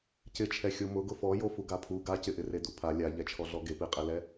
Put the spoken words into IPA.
c ɪ t͡ʃʰ ɛ xʲ o m ʊ ɡ ʊ f ɔ j o f u ɡ a pʰ u ɡ a c ɪ ʔ ɪ r e d u pʰ a lʲ a ʎ ɛ t͡ʃʰ ɔ ɮ ɔ ɡ e p i qʼ e l ɛ

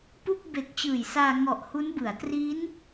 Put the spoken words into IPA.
p u˥˩ k̚ b e˨˩ k̚ t͡ɕ ɯː˨˩ j s aː˧ ŋ ɔ˨˩ ʔ h u˦˥ n b ɯ˩˦ a̯ t r i˦˥ n

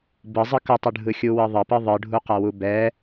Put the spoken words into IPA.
b ɯ zˤ ɯ k ʌ tˤ ɯ ɖʱ ɯ xʲ u w ɯ ðˤ ʌ p ɯ ðˤ ɯ ɖʱ u q ɐ w u b ɛ

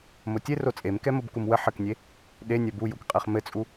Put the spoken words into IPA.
m o tʲ e r o t͡sʼ e m k ɛ m o b k u m w ə ħ ə k nʲ e | ɗ e nʲ ɛ b u j u k qʼ e χ m ɘ t͡sʼ u

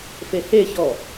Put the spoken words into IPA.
f e h e ç ɔ

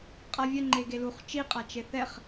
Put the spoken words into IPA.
qʼ a vʲ ə ŋ͡ǃ e ɡ e l u χ t͡ʃ i qʼ a t͡ʃ e θ ɛ χ

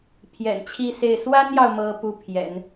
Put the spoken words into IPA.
pʰ j ɛ̰˨˩ n t͡ɕʰ i˥˧ s e˥˩ ɪ̯ s w a˥ n j ɑ˨ ʊ̯ m ɤ˥ p u˥˩ pʰ j ɛ̰˨˩˦ n

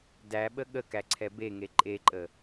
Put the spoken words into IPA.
d æ ɓ ə ɠ ə k æ ǀʰ ɛ b e ŋ e ǃʼ e ǃʼ ə

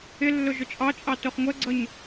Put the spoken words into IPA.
ɪ lː ʊ ʒ ʊ t͡ʃʼ ɑ t͡ʃʼ ɑ t ʊ χ ŋʷ ɛ ɡ͡ǀ ʌ ɲ

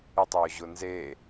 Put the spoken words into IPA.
ɪ tˤ j ʊ ʑ ʊ n z e

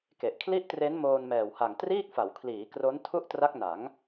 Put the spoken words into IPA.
k e˨˩ ʔ kʰ l i˥˩ ʔ t r e˦˥ n m oː˧ n m ɛː˨˩ w h a˨˩ ŋ t r iː˥˩ k̚ f a˩˦ w kʰ l iː˩˦ k r o˦˥ n tʰ u˥˩ ʔ t r a˦˥ k̚ n a˩˦ ŋ

